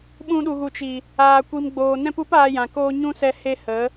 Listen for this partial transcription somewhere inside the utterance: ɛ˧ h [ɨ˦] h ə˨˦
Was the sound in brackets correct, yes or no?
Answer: no